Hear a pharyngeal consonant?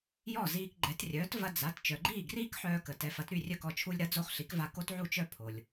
yes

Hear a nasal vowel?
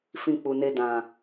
yes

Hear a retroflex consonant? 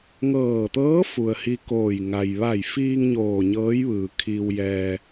no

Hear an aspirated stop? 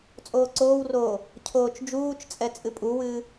yes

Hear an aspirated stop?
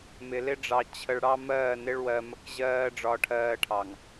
yes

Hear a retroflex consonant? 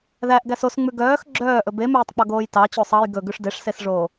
yes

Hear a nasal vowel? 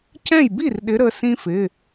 yes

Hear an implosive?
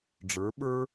yes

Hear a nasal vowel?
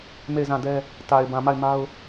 yes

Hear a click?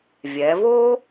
no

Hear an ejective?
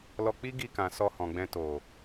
no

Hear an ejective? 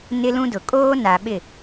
yes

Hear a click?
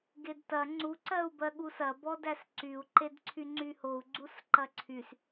yes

